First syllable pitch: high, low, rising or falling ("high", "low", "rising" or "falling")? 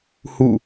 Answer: falling